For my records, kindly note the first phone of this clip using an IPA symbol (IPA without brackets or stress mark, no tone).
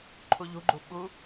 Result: ǃʰ